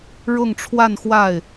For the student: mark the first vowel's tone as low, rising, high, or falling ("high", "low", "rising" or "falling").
falling